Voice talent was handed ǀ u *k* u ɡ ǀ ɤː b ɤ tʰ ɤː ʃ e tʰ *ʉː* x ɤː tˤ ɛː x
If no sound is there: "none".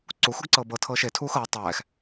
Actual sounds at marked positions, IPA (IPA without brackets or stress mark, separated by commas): x, uː